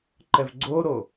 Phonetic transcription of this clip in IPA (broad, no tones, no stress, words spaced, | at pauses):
ǃɛvɡ͡ǀoɾo